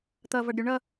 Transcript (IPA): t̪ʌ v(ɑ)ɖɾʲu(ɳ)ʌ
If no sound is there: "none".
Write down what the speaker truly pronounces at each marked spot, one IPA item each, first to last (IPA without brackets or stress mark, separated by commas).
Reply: ʌ, ɳ